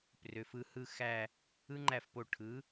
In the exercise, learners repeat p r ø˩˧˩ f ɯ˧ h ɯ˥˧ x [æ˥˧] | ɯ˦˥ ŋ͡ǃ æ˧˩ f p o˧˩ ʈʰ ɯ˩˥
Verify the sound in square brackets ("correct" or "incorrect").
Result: correct